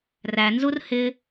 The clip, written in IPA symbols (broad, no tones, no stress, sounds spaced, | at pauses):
r æ n z u r h ɪ